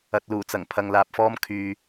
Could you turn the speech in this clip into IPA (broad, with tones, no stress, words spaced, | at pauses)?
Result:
ɐ˨t̚luː˨˩t͡sɐ˨˩ŋ pʰɐ˨ŋlaː˨p̚fɔː˥m kʰyː˧